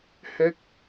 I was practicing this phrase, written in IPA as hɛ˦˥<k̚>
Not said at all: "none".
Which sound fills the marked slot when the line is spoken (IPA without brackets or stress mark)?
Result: k̚